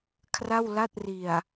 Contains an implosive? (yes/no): no